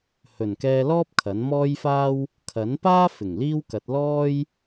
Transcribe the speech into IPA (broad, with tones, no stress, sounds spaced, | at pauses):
h ɵ˨˩ n k ɛː˧ l ɔː˥ p̚ kʰ ɐ˨˥ n m ɔː˥ j f aː˥ w | kʰ ɐ˨˥ n p aː˥ f ɪ˨˩ ŋ l iː˥ w k ɐ˨˥ t̚ l ɔː˥ j